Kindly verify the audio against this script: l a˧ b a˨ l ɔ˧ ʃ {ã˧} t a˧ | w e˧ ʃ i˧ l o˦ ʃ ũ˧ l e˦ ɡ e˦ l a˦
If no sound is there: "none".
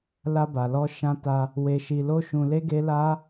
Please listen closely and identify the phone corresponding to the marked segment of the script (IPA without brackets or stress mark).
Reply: ã˧